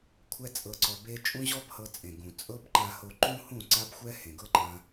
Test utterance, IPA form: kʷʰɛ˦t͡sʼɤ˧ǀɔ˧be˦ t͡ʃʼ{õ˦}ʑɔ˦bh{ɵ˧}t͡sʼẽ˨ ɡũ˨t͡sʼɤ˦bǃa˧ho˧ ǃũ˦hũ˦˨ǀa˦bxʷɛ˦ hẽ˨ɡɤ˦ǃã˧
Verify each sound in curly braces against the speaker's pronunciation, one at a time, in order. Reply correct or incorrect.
incorrect: ũ˦, incorrect: ɤ˧

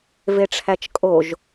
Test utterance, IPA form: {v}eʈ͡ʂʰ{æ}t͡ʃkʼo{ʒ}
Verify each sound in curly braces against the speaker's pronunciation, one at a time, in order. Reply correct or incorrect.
correct, correct, correct

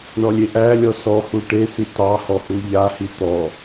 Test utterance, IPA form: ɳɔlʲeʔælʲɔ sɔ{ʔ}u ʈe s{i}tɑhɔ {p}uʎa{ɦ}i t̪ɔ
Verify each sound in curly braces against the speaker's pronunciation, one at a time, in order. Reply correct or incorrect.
incorrect: h, correct, incorrect: h, incorrect: h

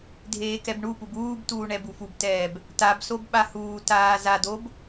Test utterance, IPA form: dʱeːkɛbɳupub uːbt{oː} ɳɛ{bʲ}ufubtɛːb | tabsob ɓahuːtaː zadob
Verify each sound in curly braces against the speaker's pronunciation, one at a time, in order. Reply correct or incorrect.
incorrect: uː, incorrect: b

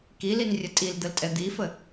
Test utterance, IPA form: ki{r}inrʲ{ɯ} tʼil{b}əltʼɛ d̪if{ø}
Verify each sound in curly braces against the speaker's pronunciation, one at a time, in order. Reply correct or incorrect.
incorrect: l, incorrect: ə, incorrect: d̪, incorrect: ə

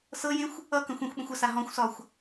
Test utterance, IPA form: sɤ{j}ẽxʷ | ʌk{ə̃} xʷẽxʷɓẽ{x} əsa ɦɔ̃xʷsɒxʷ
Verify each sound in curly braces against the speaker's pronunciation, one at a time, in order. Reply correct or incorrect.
correct, correct, incorrect: xʷ

